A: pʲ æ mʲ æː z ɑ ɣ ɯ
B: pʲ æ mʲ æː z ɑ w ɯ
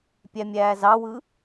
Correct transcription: B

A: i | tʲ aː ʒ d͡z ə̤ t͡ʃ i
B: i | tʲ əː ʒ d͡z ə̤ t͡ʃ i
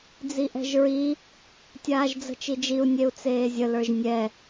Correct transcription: A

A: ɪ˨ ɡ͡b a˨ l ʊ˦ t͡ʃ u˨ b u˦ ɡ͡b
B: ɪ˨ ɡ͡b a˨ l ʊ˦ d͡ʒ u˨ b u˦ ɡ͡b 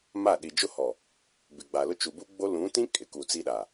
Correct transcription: A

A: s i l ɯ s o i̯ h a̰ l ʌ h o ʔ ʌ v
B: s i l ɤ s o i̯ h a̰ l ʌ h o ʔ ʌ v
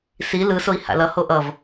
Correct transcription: A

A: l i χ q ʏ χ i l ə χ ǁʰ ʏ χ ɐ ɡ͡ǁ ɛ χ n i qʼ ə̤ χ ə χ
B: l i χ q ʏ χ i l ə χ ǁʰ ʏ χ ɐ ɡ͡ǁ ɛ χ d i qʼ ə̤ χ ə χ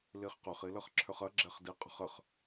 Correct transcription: B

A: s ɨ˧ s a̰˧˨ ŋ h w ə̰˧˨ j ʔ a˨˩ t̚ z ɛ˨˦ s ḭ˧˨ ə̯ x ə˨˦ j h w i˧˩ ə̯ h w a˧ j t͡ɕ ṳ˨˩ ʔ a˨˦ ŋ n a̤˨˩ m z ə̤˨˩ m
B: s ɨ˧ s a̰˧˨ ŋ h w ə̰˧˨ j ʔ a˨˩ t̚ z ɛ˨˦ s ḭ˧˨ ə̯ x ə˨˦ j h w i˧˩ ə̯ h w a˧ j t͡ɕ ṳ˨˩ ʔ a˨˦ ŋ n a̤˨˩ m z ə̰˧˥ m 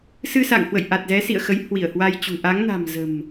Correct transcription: A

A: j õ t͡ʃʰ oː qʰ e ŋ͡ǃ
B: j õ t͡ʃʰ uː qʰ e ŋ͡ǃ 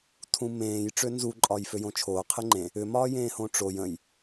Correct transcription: A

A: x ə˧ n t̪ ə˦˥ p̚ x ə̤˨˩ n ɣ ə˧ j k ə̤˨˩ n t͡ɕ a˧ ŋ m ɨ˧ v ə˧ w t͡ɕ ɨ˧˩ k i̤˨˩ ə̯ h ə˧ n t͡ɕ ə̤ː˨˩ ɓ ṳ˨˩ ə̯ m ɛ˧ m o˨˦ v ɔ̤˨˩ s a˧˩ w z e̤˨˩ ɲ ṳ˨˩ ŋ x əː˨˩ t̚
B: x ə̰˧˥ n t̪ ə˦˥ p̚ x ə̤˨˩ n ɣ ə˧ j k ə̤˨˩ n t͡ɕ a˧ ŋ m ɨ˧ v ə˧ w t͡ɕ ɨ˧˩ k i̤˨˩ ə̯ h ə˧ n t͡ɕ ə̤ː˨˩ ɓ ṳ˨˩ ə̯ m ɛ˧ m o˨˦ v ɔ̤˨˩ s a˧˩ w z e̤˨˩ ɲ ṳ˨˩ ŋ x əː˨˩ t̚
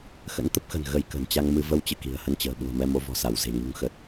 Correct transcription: B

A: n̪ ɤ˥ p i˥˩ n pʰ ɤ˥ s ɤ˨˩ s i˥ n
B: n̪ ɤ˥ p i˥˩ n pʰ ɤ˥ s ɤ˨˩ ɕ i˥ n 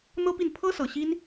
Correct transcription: B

